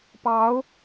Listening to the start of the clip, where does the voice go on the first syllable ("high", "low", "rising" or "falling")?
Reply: rising